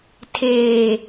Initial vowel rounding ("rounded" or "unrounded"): unrounded